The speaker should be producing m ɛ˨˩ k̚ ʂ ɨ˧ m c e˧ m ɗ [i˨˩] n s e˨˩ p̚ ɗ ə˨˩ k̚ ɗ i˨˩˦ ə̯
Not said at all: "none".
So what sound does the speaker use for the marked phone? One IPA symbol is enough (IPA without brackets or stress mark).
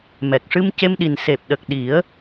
i˨˩